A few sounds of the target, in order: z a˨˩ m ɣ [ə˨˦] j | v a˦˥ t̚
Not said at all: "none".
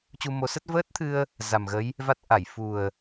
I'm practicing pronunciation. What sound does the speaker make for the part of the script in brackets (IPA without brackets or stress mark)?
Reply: ə˨˦